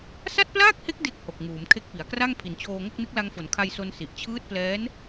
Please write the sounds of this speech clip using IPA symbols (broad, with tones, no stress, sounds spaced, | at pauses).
s a˥˩ t̚ p l aː˥˩ k̚ h e˦˥ k̚ d e˥˩ k̚ h o˨˩ k̚ ŋ uː˩˦ m kʰ e˦˥ k̚ p i˩˦ a̯ k r a˥˩ ŋ pʰ i˩˦ n t͡ɕʰ oː˧ ŋ o˥˩ k̚ n ɯ˦˥ k̚ l a˧ ŋ f o˩˦ n kʰ a˧ j s o˧ n s i˨˩ ʔ t͡ɕʰ ɯː˦˥ t̚ p l ɛː˦˥ n